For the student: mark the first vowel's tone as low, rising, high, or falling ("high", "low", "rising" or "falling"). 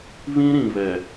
high